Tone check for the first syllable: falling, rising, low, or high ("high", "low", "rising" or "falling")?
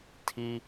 high